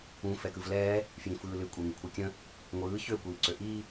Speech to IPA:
ũ f ɛ k ɯ v l ɛː | f j ĩ f ɯː l ɨ kʷʼ e ŋ ɨ kʷʰ ɯ kʲ ə̃ | ŋʷ ɯː ç ø kʷ iː ǀ ø ʔ iː

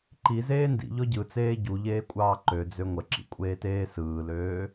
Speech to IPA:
ǃ i z eː n d ḭ ʎ ɔ ɟ ɯ t͡s eː ɟ u ʎ eː kʷʼ ɑː ǃ ø d͡z ø ŋʷ ə ǁ ḭ kʷʼ eː t eː s ɯː l øː

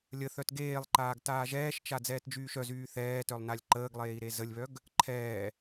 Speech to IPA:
lʲ ə θ œ t ɡ eː lˠ ǃ aː ɡ t aː ʒ ɛː ʃ t͡ʃ a d͡z ɛː t d͡ʒ yː ʃ œ z yː θ ɛː t œ lˠ n a lʲ ǃ əː ɡ lˠ eː i̯ ɾ e z ə lʲ β œ ɡ | ǃʰ ɛː

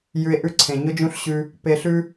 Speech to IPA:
j ʉ˧ e̯ ʔ ʉ˦ ǀʰ ẽ˨ ɲ ʊ˦ d͡ʒ ũ˦ ɬ ɕ ʉ˧ | p e˧ ɬ ʉ˦

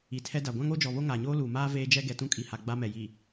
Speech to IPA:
i˨ tʰ ɛ˦ d a˨ ɡʷ ã˦ ŋ o˦ d͡ʒ ɔ˨ β o˦ ŋ aː˨ ɲ oː˦ l uː˨ m aː˦ v eː˦ d͡ʒ ɛ˦ ɡ ɛ˨ t ũ˦ kʼ i˨ h a˨ ɡ͡b a˦ m ɛ˨ j i˨

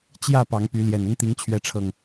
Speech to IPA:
t͡ɕ j ä˥˨ p ɑ˨˦ ŋ p y˨˦ l j ɛ˨˩ n ə˦ n t̪ i˨˦ ŋ t͡ɕʰ ɥ ɛ˨˦ ʈ͡ʂʰ ɤ˨˩ ŋ

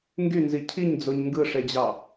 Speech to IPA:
ŋ ɡ y n z i cʰ i ɲ d͡z o ɲ ŋ ɡ ɯ ʂ e d͡ʑ ɑ

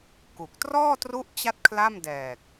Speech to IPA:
k u˨˩ k̚ t r ɔː˥˩ t r u˦˥ ʔ t͡ɕ a˦˥ t̚ kʰ l a˥˩ m d ɛː˨˩ k̚

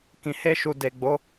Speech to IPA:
k ĩ˨ h e˧ ʃ u˨ d e˨ ɡ͡b o˨˦

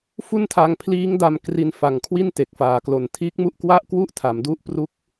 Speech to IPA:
f u˥˩ n tʰ a˧ ŋ pʰ l iː˦˥ ŋ d a˧ m k r i˧ n f a˨˩ ŋ kʰ w i˥˩ n t e˨˩ k̚ f aː˨˩ k l o˨˩ n tʰ iː˦˥ k̚ m u˦˥ ʔ k w a˥˩ ʔ k w u˥˩ ʔ tʰ a˩˦ m d u˦˥ ʔ p r u˦˥ k̚

